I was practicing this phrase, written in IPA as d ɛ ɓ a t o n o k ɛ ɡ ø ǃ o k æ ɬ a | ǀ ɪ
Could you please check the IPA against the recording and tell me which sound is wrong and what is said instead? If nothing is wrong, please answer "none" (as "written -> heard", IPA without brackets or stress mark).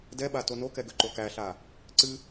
ɪ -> ɨ